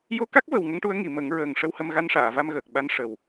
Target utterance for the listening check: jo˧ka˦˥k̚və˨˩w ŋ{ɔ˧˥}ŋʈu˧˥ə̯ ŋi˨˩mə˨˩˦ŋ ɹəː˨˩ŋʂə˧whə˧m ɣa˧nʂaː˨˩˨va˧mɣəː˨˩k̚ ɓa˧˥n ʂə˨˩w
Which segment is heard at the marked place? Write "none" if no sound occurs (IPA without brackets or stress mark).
ə˧˥